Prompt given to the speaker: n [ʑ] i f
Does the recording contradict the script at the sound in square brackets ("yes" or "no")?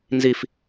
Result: yes